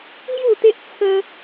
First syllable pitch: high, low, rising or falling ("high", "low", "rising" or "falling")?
falling